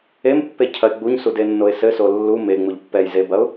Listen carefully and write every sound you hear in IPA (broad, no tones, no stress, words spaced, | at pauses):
empːecʰɐɪ̯ ɡ͡buɲsudenːoɪ̯ sɘso lːu meŋ͡muʎ pːɛj zebɐʊ̯